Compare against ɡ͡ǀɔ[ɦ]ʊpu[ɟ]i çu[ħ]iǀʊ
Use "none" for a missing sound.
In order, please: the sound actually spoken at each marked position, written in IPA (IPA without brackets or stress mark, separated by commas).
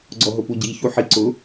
ɦ, ɟ, ħ